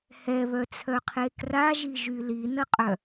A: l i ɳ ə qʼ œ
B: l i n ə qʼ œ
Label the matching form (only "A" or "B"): B